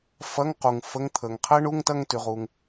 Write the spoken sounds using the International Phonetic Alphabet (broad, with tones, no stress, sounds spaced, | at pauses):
f ɐ˧˥˧ ŋ q u˩ ŋ f ə˧˥˧ ŋ t̪ʰ ə˩ ŋ qʰ ɛ˦˥ ɳ u˧˥˧ ŋ t ɐ˥˧ ŋ t y˩ ʁ u˩ ŋ